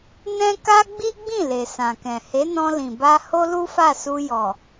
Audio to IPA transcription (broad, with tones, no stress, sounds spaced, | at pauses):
n ɛ̃˦ k a˦ ɡ͡b i˦ ɡ͡b ĩ˦˨ l e˨ s ã˨ k ɛ̃˨ h e˨˦ n ɔ̃˧ l ĩ˨ b a˧ h o˦ l u˦ f a˦˨ s u˧ j ɔ˨